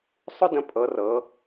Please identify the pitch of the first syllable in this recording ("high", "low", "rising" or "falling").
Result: high